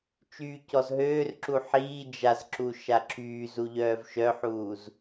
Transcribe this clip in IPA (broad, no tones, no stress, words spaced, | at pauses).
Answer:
t͡ʃyːcɔzɦøːrǁu ħiː d͡ʒazǁu ʃaǁʰyːzu ʎœːvʃœħuːz